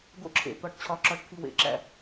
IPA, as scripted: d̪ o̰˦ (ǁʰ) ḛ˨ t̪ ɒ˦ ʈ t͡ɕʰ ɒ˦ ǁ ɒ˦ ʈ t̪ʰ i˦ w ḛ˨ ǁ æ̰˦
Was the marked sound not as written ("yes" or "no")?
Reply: no